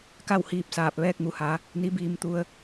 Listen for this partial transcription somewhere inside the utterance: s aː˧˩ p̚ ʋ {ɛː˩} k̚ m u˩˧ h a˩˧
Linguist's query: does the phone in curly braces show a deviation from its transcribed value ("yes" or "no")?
yes